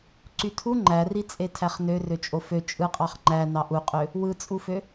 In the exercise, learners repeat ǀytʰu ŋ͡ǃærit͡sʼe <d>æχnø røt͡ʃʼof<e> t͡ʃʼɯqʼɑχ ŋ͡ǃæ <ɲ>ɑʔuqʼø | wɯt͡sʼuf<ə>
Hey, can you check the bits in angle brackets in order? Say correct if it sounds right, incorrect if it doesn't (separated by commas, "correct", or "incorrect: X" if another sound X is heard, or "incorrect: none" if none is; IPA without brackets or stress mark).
incorrect: tʰ, incorrect: ø, incorrect: n, incorrect: ø